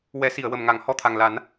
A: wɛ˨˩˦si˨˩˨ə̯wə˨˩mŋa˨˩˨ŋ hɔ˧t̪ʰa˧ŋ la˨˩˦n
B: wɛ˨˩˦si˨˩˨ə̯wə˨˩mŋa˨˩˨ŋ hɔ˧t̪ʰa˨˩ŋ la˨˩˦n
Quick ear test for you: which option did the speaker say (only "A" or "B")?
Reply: B